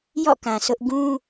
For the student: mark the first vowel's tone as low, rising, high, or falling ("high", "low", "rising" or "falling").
falling